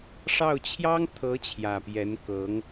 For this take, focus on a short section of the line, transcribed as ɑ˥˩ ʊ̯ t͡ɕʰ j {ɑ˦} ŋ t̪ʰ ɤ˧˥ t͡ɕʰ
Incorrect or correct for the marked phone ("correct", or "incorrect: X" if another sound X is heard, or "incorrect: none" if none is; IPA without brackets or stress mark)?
incorrect: ɑ˥